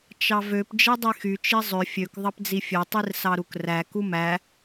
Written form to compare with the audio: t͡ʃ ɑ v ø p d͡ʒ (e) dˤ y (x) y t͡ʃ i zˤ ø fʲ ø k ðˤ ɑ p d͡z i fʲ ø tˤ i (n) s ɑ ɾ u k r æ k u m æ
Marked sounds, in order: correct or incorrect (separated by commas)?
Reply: correct, correct, incorrect